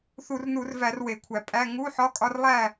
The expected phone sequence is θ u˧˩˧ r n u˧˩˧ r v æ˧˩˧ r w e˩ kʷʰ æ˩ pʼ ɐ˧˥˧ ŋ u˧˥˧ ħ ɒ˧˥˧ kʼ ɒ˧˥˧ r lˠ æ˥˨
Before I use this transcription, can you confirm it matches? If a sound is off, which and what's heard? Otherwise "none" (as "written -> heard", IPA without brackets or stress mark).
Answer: ɐ˧˥˧ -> æ˧˥˧